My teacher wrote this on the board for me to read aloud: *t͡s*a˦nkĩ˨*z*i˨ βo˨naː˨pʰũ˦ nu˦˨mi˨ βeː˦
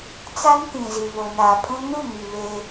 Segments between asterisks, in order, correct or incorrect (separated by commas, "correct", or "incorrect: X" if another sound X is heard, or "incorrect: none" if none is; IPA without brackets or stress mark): correct, correct